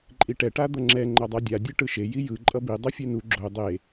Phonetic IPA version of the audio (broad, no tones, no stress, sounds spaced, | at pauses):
ǃʼ i ʈ ɛ ʈ a d̪ ʌ ŋ͡ǁ ɛ ŋ͡ǃ ʌ dˤ a dʲ a dʲ ɯ ʈ ɯ ʃ e j i j ɯ ǃʼ ʌ b i dˤ o fʲ e n u ɡ͡ǁ o dˤ e